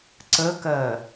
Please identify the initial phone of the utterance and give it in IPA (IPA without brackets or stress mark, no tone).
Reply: ǀ